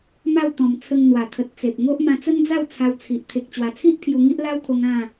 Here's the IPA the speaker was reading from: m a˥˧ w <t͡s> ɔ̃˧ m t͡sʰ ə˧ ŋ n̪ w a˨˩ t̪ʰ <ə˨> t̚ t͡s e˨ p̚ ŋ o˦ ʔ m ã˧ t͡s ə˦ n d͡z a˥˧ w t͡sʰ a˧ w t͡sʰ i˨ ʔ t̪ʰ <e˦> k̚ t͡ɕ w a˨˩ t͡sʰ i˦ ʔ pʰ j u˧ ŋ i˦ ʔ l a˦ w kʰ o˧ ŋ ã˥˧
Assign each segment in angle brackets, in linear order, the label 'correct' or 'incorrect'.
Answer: incorrect: t̪, correct, incorrect: e˨

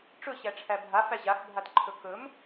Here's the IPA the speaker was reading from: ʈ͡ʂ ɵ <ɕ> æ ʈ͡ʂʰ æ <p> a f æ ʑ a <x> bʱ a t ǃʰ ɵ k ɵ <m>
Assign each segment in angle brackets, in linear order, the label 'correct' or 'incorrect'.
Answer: correct, incorrect: bʱ, correct, correct

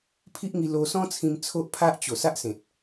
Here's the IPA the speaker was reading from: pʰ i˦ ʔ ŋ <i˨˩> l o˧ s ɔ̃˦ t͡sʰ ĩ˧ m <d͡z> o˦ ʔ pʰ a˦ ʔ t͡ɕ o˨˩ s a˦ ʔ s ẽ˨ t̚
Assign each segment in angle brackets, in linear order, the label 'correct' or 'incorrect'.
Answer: incorrect: i˧, incorrect: t͡sʰ

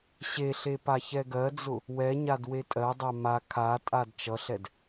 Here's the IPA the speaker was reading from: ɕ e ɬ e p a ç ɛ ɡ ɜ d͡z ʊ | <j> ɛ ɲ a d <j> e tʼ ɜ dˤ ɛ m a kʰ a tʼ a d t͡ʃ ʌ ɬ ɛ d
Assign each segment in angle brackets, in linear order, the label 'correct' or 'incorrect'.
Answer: incorrect: w, incorrect: w

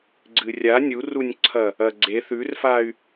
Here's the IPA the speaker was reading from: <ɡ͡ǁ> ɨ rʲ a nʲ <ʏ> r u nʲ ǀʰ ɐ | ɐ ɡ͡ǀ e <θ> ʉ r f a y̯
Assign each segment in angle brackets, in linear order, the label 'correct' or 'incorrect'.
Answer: incorrect: ɡ͡ǀ, incorrect: u, correct

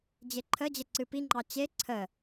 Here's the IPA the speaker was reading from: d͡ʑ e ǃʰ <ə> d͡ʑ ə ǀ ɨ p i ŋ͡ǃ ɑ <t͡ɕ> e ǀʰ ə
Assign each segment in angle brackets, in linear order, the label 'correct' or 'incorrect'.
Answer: correct, correct

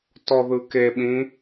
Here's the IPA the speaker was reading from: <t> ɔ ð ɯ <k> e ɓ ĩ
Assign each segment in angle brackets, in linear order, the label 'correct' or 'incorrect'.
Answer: correct, correct

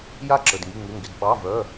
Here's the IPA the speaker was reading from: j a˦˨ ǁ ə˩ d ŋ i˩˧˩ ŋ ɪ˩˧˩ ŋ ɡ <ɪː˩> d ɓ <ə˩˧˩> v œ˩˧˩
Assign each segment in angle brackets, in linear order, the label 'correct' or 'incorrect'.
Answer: incorrect: ɪ˩, incorrect: ɑ˩˧˩

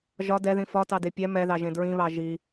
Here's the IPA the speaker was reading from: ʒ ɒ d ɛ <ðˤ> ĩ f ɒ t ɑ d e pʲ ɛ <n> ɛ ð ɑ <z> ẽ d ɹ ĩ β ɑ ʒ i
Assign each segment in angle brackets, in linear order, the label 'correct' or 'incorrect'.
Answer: incorrect: ð, incorrect: m, incorrect: ʒ

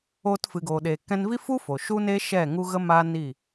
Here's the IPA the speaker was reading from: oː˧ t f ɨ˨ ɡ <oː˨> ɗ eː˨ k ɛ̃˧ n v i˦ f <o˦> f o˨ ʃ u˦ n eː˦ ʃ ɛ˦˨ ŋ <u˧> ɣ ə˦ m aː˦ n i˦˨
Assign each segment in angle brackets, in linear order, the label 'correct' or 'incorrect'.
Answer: correct, incorrect: u˦, incorrect: u˦

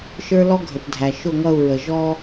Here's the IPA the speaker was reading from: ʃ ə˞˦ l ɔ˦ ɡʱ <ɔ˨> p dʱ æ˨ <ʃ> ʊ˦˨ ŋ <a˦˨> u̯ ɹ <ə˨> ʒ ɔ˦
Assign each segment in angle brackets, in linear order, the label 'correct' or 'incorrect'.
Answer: incorrect: ə˨, correct, incorrect: ʌ˦˨, correct

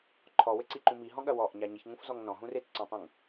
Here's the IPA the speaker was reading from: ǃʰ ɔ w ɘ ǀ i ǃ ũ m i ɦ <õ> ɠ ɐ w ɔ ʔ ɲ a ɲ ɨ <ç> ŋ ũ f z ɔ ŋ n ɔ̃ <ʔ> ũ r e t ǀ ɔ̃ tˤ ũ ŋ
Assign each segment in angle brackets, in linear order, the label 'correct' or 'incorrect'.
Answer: incorrect: ɔ̃, correct, incorrect: ɦ

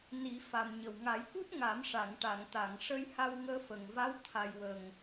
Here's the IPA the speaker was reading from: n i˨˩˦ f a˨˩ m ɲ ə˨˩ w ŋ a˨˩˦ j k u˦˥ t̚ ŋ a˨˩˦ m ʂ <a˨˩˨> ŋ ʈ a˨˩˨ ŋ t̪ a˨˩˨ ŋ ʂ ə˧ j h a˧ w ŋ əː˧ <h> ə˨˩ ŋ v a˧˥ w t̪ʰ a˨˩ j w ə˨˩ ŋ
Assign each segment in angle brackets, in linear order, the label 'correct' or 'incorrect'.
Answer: correct, incorrect: f

